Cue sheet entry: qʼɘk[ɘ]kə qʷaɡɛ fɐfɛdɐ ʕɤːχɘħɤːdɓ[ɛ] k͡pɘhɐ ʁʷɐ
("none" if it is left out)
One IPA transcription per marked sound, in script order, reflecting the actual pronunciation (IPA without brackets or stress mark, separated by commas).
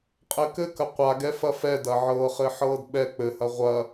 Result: ɘ, ɛ